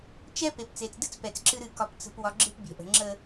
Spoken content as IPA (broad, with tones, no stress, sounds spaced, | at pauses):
t͡ʃ ɛ˦ p e˨ p t͡s e˨ t͡s d ɨ˦ t͡s p ɛ˨ t͡s ǁ ɨ˦ ɾ ɨ˦˨ k ɒ˦ p t͡s ə̤˦ p w ɒ˦ ɡ͡ǁ ɨ˦ p bʲ ɛ̤˨ ʔ ə̤˨ ŋ͡ǁ ə˦